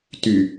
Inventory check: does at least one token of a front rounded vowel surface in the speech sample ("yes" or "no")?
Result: yes